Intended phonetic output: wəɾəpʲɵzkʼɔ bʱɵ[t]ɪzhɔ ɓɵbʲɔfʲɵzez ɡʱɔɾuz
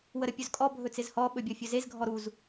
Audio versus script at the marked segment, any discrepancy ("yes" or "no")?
yes